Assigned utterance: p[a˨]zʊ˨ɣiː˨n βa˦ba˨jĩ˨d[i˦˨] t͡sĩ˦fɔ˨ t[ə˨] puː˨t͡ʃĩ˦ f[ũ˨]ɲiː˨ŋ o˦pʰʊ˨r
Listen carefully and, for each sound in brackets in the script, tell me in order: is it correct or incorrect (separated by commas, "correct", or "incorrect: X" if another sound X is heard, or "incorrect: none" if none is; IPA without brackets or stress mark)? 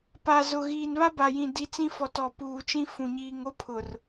correct, incorrect: i˨˦, incorrect: ɔ˨, correct